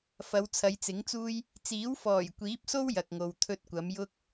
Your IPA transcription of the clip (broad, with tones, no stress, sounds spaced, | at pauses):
f ɐ˨˧ w t͡sʰ ɐ˨˧ j t͡s ɪ˨˥ ŋ t͡s uː˥ j | t͡s iː˨˥ w f ɔː˨˩ j kʷ iː˨˥ p̚ s o˥ w j ɐ˨ k̚ ŋ o˨ w t̪ʰ ɵ˥ t̚ kʷ ɐ˨˥ m j ʊ˥ k̚